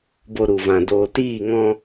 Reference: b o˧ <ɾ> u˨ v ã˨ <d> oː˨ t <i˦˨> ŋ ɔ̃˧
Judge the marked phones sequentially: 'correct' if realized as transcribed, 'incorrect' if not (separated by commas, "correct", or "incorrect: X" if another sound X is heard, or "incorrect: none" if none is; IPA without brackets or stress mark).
correct, correct, incorrect: iː˦˨